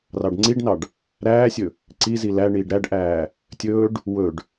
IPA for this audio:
r ɑ ɖ ŋ͡ǀ i ɖ n ɑ ɖ | ɾ æː sʲ ɵ | ǀ i z i l æ ɳ iː ɖ ɾ æ ɖ ʔ æː | tʲ ɵː ɖ | w ɵ ɖ

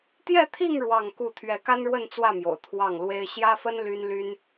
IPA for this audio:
t̪ j ɛ˥˧ t̪ʰ i˥˧ ŋ ɻ w ɑ˥˧ ŋ k u˥˩ t̪ʰ ɥ ɛ˧˥ k a˥ n ɻ w ə˥˧ n t͡s w ä˥˩ m j o̰˨˩ ʊ̯ t̪ʰ w ɑ˥˩ ŋ l w e˥ ɪ̯ ɕ j ä˥ f ə˥ n l y˥ n l y˥ n

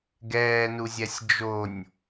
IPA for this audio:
ɡ ɛː n u zʲ ɛ sʲ d͡ʒ o nʲ

